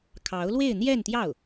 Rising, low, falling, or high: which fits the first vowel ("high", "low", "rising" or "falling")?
rising